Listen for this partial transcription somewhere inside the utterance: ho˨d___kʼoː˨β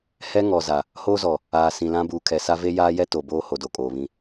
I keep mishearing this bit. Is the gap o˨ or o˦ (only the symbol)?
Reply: o˨